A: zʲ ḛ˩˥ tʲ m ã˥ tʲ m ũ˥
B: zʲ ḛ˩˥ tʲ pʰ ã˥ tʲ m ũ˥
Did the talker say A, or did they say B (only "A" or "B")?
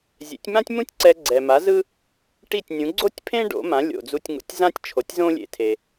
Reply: A